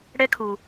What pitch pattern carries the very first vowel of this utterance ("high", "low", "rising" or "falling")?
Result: high